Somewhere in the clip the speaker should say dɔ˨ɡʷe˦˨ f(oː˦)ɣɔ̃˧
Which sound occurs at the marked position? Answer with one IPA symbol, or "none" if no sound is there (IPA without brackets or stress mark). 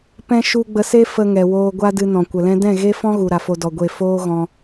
oː˦